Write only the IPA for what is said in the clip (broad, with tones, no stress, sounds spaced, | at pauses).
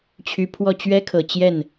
t͡ɕʰ y˧˥ pʰ w ɔ˥˩ t͡ɕ ɥ ɛ˥ kʰ ɤ˨˩ t͡ɕ j ɛ˥˩ n